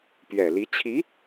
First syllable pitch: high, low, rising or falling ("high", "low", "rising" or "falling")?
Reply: low